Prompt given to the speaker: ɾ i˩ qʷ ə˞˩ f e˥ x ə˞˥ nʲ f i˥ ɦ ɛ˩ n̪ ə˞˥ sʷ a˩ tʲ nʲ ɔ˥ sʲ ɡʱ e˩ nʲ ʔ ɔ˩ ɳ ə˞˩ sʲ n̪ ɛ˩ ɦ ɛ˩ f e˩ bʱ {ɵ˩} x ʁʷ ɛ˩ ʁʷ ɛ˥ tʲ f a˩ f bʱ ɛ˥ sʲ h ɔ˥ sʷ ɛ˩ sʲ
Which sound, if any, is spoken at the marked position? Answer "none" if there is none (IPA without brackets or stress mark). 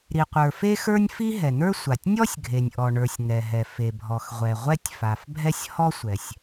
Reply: ɔ˩